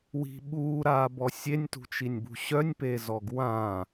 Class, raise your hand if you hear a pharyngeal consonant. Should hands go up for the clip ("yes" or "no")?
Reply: no